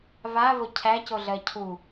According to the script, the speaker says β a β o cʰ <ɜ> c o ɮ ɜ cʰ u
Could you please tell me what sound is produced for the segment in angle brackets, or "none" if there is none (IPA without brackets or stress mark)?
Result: æ